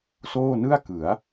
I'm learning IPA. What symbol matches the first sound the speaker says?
s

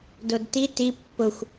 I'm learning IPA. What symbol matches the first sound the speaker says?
d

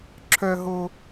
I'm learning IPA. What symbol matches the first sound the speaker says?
ǁʰ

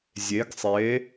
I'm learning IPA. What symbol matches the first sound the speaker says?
zʲ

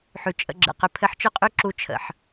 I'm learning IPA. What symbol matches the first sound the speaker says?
ħ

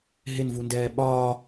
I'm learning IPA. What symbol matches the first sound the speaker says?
ɦ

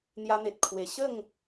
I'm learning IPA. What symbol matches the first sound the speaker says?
n̪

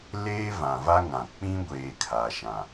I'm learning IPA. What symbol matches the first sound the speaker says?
l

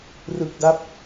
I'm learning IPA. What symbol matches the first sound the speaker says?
r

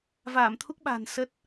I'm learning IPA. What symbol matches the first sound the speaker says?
v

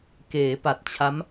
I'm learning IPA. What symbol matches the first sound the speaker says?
k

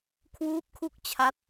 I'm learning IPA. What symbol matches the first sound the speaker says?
kʰ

